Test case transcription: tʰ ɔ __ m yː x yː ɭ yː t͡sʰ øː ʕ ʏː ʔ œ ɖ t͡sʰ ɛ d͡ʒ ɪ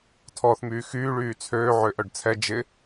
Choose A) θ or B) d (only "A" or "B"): A